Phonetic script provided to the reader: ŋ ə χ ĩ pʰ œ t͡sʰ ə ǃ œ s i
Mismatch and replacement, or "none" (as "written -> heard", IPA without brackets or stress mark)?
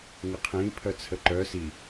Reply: χ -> qʰ